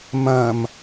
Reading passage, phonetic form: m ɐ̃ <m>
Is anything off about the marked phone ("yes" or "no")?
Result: no